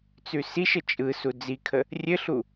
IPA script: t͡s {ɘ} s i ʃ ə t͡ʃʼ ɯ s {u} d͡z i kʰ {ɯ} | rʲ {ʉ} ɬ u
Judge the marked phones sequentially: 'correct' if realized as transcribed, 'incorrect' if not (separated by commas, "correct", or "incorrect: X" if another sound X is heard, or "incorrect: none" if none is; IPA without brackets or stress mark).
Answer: incorrect: ʉ, correct, incorrect: ə, incorrect: ɘ